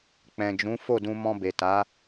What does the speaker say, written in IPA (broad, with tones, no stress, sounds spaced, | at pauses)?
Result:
k͡p ɛ̃˨ d͡ʒ ũ˨˦ f o˦˨ d ũ˧ m ɔ̃˧ b e˨ t a˨˦